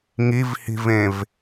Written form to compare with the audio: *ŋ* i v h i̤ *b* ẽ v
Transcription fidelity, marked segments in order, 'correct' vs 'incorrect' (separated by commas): correct, incorrect